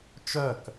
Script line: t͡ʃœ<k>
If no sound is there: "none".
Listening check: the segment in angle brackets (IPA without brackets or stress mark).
k